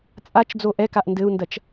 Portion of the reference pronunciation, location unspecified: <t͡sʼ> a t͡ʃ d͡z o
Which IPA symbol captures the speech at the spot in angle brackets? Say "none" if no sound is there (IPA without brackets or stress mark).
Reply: t͡sʼ